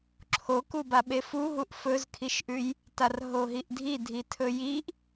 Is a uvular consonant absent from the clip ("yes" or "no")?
yes